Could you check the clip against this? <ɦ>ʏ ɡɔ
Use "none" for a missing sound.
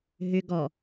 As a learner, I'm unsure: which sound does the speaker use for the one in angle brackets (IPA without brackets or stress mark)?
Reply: ɦ